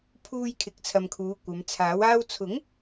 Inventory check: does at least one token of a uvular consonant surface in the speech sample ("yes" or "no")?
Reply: no